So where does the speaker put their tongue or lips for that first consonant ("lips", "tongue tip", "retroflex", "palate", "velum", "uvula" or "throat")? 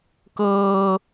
velum